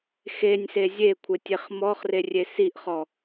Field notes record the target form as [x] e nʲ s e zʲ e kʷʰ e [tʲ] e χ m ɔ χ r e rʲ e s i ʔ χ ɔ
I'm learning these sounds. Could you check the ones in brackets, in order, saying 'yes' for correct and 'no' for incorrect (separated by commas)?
yes, yes